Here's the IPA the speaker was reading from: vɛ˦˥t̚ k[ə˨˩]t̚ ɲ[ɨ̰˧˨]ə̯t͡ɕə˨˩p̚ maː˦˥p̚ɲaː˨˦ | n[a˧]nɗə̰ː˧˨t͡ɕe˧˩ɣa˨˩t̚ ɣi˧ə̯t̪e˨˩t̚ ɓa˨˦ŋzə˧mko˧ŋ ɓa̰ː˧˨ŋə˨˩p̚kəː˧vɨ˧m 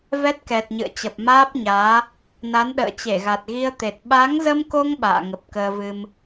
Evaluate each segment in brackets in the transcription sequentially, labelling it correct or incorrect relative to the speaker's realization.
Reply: incorrect: ɛ˨˩, correct, incorrect: a˨˦

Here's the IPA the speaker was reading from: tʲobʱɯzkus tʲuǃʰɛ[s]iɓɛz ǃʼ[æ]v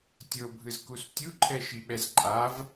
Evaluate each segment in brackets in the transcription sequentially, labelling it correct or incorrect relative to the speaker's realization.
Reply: incorrect: ʃ, incorrect: a

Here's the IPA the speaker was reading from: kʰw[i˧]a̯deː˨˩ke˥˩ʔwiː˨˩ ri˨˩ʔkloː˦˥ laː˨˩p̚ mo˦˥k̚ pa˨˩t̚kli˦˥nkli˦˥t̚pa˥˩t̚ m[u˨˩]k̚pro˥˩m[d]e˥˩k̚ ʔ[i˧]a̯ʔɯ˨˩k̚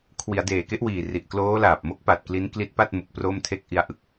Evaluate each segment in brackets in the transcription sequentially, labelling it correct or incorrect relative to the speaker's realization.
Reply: incorrect: i˩˦, correct, incorrect: tʰ, correct

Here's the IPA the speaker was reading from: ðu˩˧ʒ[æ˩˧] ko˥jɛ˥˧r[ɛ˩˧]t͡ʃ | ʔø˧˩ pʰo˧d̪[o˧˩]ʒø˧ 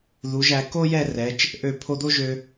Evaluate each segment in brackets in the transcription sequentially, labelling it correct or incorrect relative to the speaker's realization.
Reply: correct, correct, incorrect: o˥

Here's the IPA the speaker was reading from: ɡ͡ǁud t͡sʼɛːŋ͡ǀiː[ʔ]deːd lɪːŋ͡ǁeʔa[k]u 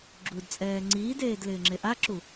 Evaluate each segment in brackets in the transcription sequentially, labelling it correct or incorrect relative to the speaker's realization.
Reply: incorrect: none, incorrect: ǁ

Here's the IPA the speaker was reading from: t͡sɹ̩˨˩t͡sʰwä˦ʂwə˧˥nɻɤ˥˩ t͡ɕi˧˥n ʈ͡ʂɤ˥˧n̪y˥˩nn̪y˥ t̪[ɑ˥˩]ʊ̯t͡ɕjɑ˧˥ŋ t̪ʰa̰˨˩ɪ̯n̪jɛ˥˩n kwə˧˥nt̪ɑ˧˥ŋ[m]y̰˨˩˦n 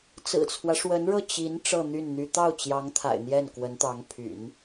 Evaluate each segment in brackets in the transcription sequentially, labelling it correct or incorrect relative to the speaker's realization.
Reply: correct, incorrect: pʰ

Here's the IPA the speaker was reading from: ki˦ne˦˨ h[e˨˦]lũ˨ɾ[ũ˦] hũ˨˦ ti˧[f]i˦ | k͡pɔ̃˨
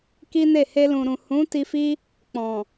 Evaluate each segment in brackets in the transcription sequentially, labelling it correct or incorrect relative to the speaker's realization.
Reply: incorrect: e˧, incorrect: ũ˨, correct

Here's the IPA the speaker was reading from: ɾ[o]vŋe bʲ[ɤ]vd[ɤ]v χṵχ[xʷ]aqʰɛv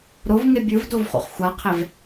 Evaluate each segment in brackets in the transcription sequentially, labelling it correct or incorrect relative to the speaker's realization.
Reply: correct, incorrect: ɯ, incorrect: o, correct

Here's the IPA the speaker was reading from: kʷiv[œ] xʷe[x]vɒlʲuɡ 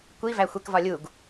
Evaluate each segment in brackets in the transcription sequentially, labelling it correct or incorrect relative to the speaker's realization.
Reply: incorrect: æ, incorrect: k

